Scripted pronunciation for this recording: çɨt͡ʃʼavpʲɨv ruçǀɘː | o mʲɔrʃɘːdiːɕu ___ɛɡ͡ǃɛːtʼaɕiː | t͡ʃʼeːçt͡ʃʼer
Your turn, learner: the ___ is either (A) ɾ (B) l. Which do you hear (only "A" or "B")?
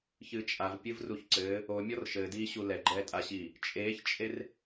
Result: B